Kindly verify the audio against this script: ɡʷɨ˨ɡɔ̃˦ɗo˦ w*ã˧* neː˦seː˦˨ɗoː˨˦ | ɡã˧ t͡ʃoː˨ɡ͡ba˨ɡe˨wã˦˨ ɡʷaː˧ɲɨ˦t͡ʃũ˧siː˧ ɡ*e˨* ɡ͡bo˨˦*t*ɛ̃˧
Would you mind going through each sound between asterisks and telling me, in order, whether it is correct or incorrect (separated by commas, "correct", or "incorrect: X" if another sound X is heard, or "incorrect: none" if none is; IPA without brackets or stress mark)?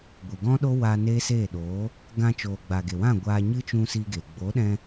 incorrect: a˧, correct, incorrect: ɗ